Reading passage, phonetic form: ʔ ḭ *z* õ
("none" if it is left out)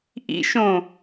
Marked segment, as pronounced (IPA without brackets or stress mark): ʃ